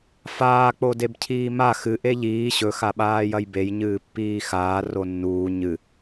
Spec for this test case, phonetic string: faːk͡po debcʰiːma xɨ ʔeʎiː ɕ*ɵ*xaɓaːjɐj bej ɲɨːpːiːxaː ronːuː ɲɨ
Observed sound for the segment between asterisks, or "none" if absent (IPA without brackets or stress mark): ɵ